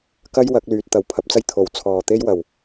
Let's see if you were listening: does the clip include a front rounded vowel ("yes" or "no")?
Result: yes